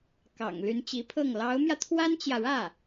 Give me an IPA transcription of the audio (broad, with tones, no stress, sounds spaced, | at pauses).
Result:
k ɑ̰˨˩ ŋ l y˧˥ n t͡ɕ i˧˥ pʰ ɤ˥˩ ŋ l ɑ˧˥ ʊ̯ m j ä˧ t̪ʰ w a˥ n t͡ɕ j ä˨ ɻ ä˥˩